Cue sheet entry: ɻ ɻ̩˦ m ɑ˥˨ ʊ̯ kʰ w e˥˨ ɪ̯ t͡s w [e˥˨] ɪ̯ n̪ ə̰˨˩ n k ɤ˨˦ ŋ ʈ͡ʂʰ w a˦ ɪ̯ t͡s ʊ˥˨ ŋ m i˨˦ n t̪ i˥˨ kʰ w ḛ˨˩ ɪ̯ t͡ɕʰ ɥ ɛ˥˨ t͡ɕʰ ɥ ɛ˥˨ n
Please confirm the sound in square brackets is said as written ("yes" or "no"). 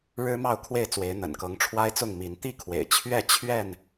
no